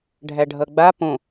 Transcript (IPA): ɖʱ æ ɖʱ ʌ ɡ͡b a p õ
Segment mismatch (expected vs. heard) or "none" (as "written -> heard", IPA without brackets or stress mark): none